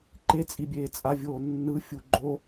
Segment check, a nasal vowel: absent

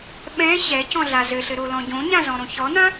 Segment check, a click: absent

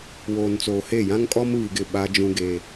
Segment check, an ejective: present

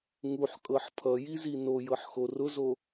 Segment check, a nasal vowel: absent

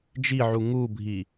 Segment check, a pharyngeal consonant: present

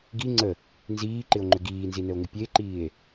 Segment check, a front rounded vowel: present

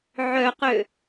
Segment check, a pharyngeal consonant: present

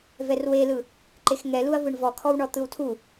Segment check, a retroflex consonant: present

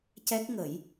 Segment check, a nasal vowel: absent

